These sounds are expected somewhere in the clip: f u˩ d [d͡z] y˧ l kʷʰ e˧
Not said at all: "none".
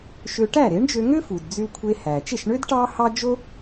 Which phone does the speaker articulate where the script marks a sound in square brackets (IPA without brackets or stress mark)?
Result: d͡z